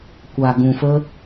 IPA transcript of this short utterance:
kʷa˨ɡũ˨fə˧

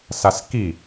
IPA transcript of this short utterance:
saski

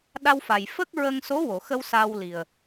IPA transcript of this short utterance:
ɗa˧wfa˨˩j fə˦˥k̚ ɹə˧ŋso˧˥wo˨˩˨xə˧w sa˧wli˨˩ə̯

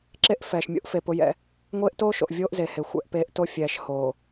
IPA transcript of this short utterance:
ǁe˦ʔ fɛː˨ʃmʲo̰˦ʔfe˨ pʊ˦jɛ̰˦ | ŋʷeː˦ʔtoː˦ʃo̰˨ʔ vʲoː˦ʔze˨he˨ xʷɛ̰˦ʔpeː˦ʔ to˦ fʲɛː˨ʃ hoː˨

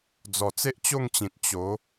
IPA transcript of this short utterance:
d͡zɔ˨˩t͡se˦ʔt͡ɕo˥˧ŋt͡ɕĩ˨t̚ t͡ɕo˨˦

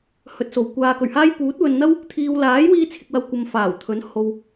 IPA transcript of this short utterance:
hɵ˨t̚so˨˩w kʷaː˨kɵ˨˩ɥhaː˥j puː˨˥t̚wɵ˨nn̪ɐ˥w | t̪ʰiː˧w laː˨˥jwiː˧t͡sʰɪ˨k̚wɐ˨w kʷɐ˧mfaː˨˩wt̪ʰɵ˨˥n ho˨w

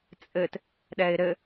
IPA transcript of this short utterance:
t͡sʼɘt | ɗɛɪ̯ɾɘ

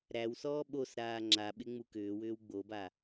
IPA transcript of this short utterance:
ɾæwsɔː ɓos ɾaːŋ͡ǁa ɓɪŋ͡mukʏːwʏːw ɡ͡boba

